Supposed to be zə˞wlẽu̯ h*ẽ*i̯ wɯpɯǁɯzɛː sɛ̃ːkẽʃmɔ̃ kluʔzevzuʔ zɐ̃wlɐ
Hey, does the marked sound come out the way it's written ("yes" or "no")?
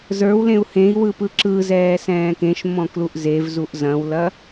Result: yes